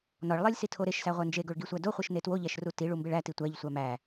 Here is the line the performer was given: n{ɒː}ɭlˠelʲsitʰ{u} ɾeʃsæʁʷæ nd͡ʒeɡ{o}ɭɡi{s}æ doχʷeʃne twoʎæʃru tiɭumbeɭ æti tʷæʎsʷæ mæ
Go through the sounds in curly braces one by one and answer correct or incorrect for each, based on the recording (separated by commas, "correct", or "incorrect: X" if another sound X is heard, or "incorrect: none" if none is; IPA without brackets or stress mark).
incorrect: ɒ, incorrect: o, correct, incorrect: sʷ